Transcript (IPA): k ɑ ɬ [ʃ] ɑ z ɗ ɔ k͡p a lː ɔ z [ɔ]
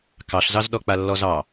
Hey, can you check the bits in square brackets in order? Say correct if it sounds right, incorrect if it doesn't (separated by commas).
incorrect, incorrect